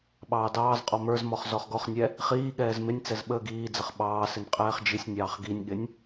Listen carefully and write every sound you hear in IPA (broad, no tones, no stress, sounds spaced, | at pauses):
ɓ ɑː d ɑː z qʼ ɔ m ə˞ z m ɔ χ z ɔ χ ɡ ɔ χ nʲ ɛ | χ iː ɠ ɛː z m ɪ nʲ t͡s ɛ z ɓ əː ɡ iː d͡z ə χ ɓ ɑː s ɪ n qʼ ɛː χ d͡ʒ i sʲ nʲ ɑː χ ɡ i nʲ ɠ ɪ nʲ